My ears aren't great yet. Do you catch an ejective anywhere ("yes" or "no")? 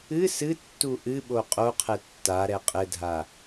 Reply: yes